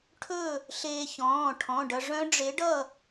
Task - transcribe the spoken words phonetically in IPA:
ʈʰɵ˥˨ | ɬeː˧çɔ̃ː˩˧˩ ʈʰɔ̃˩˧˩ɖʌ˧ ʐœ̃˦˥ɖ͡ʐe˨˥ɖʌ˥˨

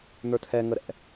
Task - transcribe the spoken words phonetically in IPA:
n̪ə˞tʰɛ ŋəɾɛ̰

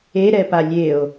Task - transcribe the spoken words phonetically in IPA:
eɾɛ palʲeo̯

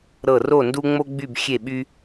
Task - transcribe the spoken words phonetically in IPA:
ɾɤ˦˨ ro˦˨ ndu˦ŋ͡mo˦ɡ͡by˦˨b xʲe˦˨ɓy˦

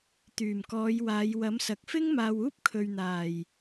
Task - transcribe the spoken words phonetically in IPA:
t̪yː˨˩mkɔː˨˧j waː˨˧jwɐ˨˥msɐ˨k̚ fɪ˥ŋmaː˨w uː˥p̚kʰɵ˨ɥ n̪aː˨˩j

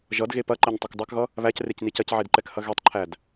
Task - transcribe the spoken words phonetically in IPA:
ʒʌdɣe pɐǃɛɲtˤɐk dˤækɣʌ | βæcrecni cɐcʕedǃɛkhɐ ɣetˤǃʰæd

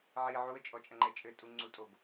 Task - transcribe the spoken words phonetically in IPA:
ʕi ʕuə̯t͡ʃʼɔt͡ʃʼɐŋ͡ǃɛ t͡ʃʼɘtʼuŋ͡ǀutʼob

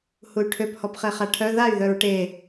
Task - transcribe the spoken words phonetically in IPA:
huy̯ʈʰøp hɔpχeχaʈʰœ ðay̯ ðœɹʈe

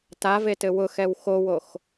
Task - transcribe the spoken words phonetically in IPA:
tavetɘ wʊxɛw xowox

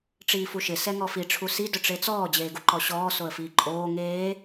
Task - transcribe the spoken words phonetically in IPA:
ʈ͡ʂiːfuʃɪ sɛŋɔfi ʈ͡ʂʰusi dʊʈ͡ʂet͡sɔː d͡ʑeːɡuǃɔɕɔː soə̯fiːǃʼoː ŋeː

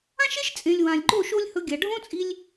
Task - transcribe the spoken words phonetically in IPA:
ã˦ʃe˦ʃt͡sʼẽ˨lʲ wã˨lʲɡ͡ǃo˦˨ ʃo˦lʲhɵ˧ɡʲa˨ ɖʱõ˦t͡sʼi˧lʲ

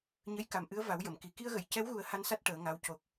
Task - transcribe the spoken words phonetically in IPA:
ɲə˧˥jka˨˩mʔɨ˧˥ə̯ va˨˩˦wjə˨˩˨mki˨˩ ki˧ə̯ɣə˨˩˨jcɛ˧˥wɣu˨˩˦ə̯ ha˧˥nsa˦˥t̚ ʈəː˨˩˦ŋa˧˥w co˨˩k̚

